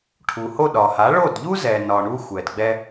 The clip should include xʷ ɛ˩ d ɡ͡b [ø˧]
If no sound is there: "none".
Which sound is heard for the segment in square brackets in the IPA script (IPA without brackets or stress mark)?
ɛ˧